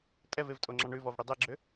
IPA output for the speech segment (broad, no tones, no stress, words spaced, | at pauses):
tʼɛvevtʼoŋ͡ǁɑ ɳʉvɔv ɽidˤɛɡ͡ǁø